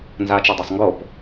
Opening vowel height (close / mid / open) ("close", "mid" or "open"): open